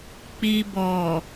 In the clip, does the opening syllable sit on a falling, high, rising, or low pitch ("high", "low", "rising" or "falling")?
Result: low